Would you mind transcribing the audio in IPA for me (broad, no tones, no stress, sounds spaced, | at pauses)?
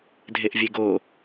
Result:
dʱ e ʔ vʲ e ɡ o